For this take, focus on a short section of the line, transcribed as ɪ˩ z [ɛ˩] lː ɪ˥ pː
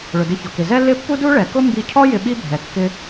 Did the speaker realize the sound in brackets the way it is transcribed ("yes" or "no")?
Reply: no